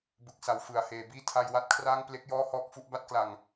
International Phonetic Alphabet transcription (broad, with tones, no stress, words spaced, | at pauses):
bɯ˨˩k̚sa˩˦w fɯ˩˦a̯heː˩˦ biː˥˩tʰa˧j wa˥˩t̚kʰraː˥˩ŋ ple˥˩k̚jɔː˥˩hɔː˥˩k̚ fu˥˩ʔba˥˩t̚kla˨˩ŋ